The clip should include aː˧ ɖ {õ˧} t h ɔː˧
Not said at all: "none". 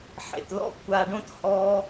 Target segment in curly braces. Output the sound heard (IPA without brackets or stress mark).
õ˥